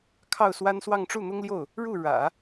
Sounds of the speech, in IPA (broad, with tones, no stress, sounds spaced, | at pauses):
kʰ ɑ˥˩ ʊ̯ s w a˥ n s w ɑ˥˧ ŋ ʈ͡ʂ u˥˩ n̪ ʊ˥ ŋ l j o˥˩ ʊ̯ | ɻ u˥˩ ɻ ä̰˨˩˦